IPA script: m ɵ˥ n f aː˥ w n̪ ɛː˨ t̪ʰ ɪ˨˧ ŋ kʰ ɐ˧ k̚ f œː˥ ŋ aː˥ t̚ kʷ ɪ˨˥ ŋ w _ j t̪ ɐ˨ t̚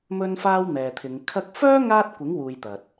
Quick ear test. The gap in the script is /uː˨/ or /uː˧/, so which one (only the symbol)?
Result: uː˨